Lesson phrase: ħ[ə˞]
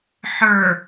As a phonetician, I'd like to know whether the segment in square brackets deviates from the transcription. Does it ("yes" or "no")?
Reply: no